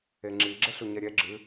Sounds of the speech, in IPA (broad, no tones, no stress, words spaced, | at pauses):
eŋ͡ǁi ɡ͡ǁeɬuɲɛɾʲɛ ɡ͡ǁɨ